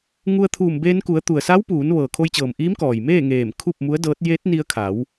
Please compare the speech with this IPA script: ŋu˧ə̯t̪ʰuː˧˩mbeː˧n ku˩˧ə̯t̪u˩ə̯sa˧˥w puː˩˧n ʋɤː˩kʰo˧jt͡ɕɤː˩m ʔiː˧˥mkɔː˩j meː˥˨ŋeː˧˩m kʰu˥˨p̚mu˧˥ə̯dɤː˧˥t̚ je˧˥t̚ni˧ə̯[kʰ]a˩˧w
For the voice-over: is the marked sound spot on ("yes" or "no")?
yes